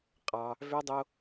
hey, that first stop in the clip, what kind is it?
ejective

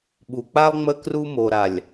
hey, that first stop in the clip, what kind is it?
implosive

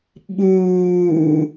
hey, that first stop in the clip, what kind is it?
implosive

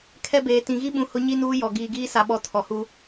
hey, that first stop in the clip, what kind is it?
aspirated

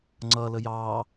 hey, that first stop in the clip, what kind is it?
click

